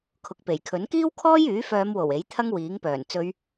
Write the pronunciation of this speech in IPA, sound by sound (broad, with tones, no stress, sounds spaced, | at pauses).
kʰ ʊ˨ k̚ p e˨˩ j kʰ ɵ˨˥ n k iː˥ w kʰ ɔː˥ j yː˨˥ f œː˨˧ m w o˨˩ w e˨˥ j t̪ʰ ɐ˥ ŋ w iː˨˥ ŋ p œː˨˩ n t͡s ɵ˨˧ ɥ